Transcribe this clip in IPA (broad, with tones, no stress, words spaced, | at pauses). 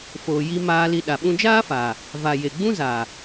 foː˨ ji˧maː˧li˧ ɗa˨ɓũ˧ d͡ʒaː˦faː˨ | va˨ je˨ ɡ͡bũ˦zaː˨